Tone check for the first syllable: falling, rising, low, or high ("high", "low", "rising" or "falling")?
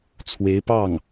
rising